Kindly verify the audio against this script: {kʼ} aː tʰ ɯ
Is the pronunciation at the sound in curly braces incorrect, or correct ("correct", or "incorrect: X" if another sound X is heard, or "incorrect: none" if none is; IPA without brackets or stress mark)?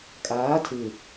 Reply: correct